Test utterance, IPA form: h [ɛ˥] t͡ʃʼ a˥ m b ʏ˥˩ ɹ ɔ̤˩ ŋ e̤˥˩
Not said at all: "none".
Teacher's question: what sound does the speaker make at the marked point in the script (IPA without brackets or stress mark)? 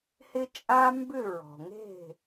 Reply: ɪ˥